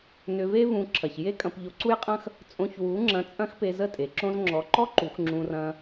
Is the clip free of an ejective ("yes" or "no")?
no